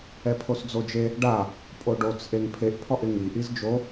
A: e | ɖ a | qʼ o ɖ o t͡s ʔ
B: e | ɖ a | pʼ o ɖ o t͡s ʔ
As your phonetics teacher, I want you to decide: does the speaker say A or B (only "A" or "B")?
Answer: B